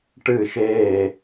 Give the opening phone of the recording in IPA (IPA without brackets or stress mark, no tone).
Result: ʈ